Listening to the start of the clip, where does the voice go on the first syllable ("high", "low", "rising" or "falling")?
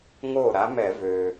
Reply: falling